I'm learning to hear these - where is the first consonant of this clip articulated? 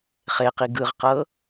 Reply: uvula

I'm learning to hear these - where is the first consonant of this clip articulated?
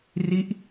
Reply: tongue tip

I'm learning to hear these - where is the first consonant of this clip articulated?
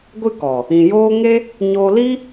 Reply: velum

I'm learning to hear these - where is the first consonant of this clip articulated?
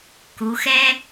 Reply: velum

